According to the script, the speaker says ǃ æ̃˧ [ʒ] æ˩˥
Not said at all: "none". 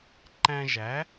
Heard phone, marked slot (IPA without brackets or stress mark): ʒ